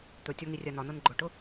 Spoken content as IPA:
t̪ ɵ tʲ ɒ ŋ i rʲ a n ɒ n ɤ n ɡ͡ǃ ʊ ʈ ʊ

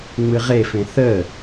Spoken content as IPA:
ŋ͡m ɨ ʁ e f ẽ θ ə

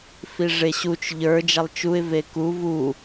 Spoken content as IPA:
f i ʐ e ɕ u t͡ʃ ʎ ə˞ d͡ʒ a lˠ t͡ʃ u ɪ̯ v e k u v u

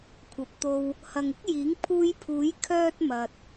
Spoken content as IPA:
kʷʰ ɐ˨ p̚ t̪ o˧ w | h ɐ˨ ŋ ɪ˥ k̚ j iː˨˥ ŋ pʰ uː˧ j pʰ uː˨˥ j kʰ œː˥ t̚ m ɐ˧ t̚

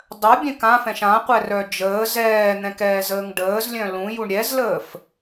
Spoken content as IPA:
dˤ œ bʲ ɛ̃ k ã f ɛ̃ ʃ ã qʷ ɛ r œ d͡ʒ əː z ɛː n̪ ɛ̃ k ɛː z əː ŋ ɖ əː z lʲ œ̃ l ũ j u ɳ ɾʲ ɛ z l əː f

